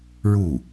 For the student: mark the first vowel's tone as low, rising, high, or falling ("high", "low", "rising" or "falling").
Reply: falling